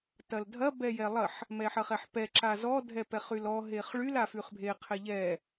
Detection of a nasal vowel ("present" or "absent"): absent